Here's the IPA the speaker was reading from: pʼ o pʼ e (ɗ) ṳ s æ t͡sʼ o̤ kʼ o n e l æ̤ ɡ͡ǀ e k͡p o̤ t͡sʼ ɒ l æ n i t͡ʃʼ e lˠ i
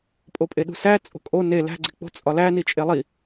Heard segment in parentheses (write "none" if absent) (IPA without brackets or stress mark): ɗ